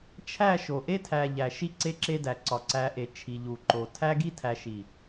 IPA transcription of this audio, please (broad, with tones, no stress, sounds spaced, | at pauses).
t͡ʃʰ æ˦˨ ʃ o˨ ʔ e˦ tʰ æ˨ ʎ æ˨ ʃ i˦ ǀ e˦ ǁ e˦ d æ˨ ǀ ɒ˨ ǀ æ˨˦ ʔ e˨ t͡ʃʰ i˨ ʎ u˨ ǃ o˨ tʰ æ˦ ɡ i˦ tʰ æ˨ ʃ i˨